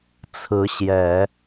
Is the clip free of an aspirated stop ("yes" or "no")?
no